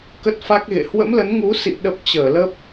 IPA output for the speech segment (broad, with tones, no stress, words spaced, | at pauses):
kə˦˥t̚fa˦˥k̚ɣḛ˧˨ hwə̰˧˥mlə˨˦nŋu˨˦sḭ˧˨ ɗə˦˥p̚t͡ɕəː˧˩ lə˦˥p̚